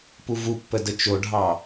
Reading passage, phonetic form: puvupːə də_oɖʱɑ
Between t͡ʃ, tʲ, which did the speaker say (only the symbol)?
t͡ʃ